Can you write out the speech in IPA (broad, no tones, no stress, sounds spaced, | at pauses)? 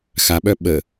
x a ɓ œ ɓ ə